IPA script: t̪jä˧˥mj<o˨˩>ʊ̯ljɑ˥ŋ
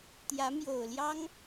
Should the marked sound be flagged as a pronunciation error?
no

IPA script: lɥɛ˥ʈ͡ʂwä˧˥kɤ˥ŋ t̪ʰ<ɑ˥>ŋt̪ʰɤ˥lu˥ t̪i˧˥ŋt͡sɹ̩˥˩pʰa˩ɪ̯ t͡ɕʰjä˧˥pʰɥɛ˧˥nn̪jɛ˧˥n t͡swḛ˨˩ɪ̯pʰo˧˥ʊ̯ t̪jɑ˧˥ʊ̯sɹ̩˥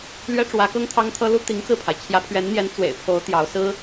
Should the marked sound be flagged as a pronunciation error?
no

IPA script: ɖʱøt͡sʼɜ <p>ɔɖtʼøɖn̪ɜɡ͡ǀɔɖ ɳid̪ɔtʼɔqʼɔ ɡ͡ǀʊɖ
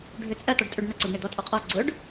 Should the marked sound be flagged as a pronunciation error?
yes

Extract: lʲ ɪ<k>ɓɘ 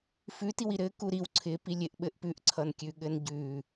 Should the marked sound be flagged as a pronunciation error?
yes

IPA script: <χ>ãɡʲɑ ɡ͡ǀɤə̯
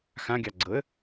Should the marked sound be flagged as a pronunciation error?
yes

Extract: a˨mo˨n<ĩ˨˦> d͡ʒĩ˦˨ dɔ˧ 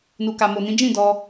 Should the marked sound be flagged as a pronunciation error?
no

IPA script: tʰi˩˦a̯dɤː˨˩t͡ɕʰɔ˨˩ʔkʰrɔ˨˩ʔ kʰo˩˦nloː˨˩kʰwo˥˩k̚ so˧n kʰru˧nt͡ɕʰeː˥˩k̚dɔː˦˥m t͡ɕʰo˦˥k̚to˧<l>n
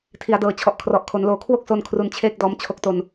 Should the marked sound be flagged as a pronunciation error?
yes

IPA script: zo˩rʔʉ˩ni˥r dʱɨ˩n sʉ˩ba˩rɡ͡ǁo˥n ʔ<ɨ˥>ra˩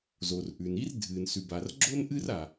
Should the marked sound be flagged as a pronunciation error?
no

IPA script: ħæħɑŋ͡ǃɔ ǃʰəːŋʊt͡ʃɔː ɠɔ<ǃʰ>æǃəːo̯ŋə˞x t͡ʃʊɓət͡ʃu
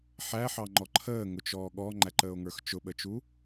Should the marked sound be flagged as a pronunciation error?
yes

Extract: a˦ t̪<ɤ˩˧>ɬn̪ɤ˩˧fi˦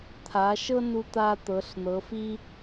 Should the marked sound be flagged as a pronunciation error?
no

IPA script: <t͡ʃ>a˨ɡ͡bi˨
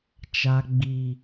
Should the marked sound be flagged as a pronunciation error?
no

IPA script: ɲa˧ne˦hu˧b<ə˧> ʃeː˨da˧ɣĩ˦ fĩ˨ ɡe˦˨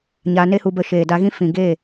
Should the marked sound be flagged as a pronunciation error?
no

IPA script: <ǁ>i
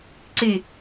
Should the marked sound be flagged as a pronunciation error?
yes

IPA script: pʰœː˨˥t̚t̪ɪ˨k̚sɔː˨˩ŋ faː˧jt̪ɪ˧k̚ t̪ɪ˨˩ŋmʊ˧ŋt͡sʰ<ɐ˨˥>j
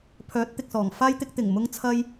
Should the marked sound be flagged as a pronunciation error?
yes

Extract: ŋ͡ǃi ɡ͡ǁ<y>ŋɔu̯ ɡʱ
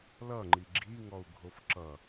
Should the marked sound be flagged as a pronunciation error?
yes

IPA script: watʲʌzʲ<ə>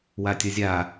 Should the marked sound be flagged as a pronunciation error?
yes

